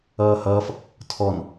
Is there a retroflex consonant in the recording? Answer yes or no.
no